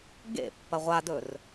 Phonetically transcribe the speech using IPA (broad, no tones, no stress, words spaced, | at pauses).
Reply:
ɡḛpːɐ ʁʷadɵr